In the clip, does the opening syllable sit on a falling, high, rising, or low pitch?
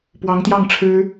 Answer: rising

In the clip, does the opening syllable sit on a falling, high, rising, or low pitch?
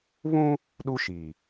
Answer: high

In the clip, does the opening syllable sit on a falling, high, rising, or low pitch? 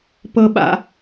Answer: high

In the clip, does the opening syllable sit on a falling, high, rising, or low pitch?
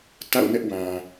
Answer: falling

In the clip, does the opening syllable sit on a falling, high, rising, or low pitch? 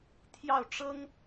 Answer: falling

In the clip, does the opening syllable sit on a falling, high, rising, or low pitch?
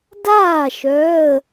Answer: falling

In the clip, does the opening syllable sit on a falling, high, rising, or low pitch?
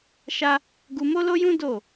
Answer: high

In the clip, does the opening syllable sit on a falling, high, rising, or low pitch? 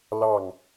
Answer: falling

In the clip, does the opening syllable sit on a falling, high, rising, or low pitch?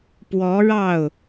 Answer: rising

